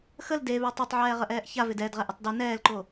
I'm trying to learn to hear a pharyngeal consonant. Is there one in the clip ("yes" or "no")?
yes